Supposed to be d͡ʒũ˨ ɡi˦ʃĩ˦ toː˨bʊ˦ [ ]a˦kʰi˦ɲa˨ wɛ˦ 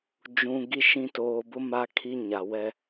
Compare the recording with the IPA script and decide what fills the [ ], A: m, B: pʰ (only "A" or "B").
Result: A